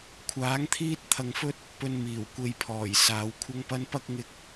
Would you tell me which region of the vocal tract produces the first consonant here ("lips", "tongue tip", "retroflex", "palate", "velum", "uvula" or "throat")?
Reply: velum